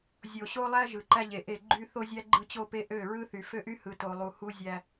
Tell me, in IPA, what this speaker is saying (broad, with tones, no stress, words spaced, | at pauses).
zʲo˨ɕo˦lˠæ˦ ʒɯ˨ǃæ˦ʎe˨ʔe˦˨ ɡ͡ǃy˦ θo˦zʲæ˦ ɡ͡ǃɯ˦t͡ɕo˦ pe˦ʔø˦˨ ɹɯ˦θy˨ fø˦ʔy˦hɯ˨ to˨lˠu˨ hu˦zʲæ˦